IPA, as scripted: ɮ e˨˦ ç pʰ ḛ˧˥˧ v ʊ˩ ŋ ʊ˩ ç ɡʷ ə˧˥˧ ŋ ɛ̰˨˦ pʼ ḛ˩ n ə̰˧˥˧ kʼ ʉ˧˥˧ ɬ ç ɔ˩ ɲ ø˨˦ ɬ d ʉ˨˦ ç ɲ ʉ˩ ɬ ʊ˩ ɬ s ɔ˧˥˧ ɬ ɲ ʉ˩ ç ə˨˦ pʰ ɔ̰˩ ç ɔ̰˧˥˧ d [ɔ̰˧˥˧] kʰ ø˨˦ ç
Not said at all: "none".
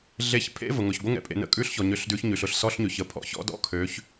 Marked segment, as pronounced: ɔ̰˧˥˧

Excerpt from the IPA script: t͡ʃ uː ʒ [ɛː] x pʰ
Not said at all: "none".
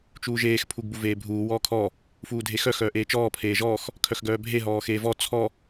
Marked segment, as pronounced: eː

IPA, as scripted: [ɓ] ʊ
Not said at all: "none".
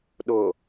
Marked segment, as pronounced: ɗ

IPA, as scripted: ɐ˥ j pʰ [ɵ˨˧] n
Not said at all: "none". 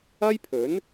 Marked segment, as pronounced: ɵ˨˥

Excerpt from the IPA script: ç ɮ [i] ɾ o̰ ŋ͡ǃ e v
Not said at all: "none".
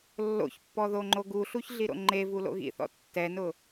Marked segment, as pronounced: i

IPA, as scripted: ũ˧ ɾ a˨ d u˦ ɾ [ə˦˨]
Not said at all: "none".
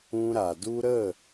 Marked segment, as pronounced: ə˦˨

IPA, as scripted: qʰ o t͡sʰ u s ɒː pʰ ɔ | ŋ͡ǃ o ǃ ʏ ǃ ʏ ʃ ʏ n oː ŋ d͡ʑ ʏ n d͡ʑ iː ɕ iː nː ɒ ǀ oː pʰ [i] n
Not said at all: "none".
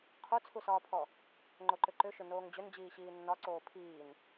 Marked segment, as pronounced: iː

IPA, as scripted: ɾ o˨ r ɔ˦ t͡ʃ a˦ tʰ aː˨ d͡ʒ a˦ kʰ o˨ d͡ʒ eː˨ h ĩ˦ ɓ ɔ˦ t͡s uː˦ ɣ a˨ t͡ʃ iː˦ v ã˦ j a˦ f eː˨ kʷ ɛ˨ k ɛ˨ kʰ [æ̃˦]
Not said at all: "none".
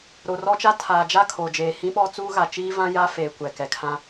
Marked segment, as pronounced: ã˦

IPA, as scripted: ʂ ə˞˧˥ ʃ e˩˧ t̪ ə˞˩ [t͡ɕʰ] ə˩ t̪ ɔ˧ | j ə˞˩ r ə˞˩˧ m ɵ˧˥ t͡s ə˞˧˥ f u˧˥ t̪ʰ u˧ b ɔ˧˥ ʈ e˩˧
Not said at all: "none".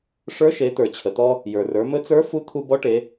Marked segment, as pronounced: t͡ɕʰ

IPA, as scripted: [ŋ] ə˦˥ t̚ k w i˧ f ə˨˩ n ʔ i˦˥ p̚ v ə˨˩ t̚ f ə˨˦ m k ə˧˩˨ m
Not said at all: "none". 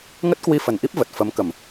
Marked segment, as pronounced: ŋ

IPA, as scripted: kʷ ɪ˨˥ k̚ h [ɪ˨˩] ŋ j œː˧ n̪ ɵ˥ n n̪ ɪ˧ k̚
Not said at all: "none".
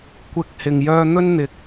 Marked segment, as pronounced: ɪ˨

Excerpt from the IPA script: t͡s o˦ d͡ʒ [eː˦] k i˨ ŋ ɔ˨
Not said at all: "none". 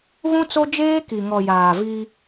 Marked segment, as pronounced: eː˦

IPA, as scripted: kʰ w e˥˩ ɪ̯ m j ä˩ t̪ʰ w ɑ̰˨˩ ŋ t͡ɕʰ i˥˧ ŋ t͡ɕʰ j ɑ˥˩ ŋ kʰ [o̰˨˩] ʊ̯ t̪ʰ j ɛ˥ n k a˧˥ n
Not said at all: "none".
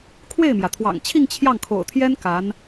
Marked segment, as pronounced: o̰˨˩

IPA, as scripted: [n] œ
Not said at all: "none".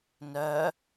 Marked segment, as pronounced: n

